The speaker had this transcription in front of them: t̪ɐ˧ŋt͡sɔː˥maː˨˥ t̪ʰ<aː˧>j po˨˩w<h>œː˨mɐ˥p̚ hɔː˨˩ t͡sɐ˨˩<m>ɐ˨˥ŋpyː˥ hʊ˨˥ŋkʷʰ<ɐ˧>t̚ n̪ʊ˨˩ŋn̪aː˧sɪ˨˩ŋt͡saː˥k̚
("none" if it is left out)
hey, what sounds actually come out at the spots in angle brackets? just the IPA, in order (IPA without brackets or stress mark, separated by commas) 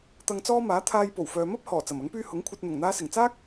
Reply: aː˧, f, m, ɐ˧